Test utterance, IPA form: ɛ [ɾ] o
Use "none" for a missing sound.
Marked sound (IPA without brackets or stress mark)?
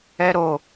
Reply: ɾ